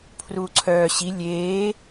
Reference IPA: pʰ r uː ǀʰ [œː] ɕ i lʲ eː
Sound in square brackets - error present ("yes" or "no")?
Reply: no